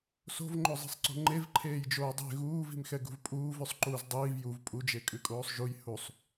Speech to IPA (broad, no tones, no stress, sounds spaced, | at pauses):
s o̤ v ŋ͡ǃ o zˤ e̤ sˤ ǀ o̤ ŋ͡ǃ e v ǃʰ eː j d͡ʒ oː dˤ e̤ ɣ uː v i̤ m x ɛ ɡ ṳ v pʼ uː v ʉ sˤ ǃ uː z dˤ iː v j u v pʼ u d͡ʒ e kʼ ʉ kʼ oː sˤ ʒ u j h u sˤ